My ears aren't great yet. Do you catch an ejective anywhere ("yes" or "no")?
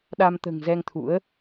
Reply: no